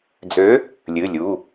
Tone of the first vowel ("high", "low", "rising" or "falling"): rising